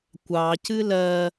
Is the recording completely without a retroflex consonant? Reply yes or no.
yes